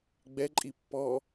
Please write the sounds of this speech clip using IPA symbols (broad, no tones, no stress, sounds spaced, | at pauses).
ɡ͡b ɛ ǃʼ i pː ɔ